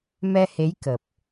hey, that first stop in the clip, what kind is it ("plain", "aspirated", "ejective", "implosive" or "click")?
plain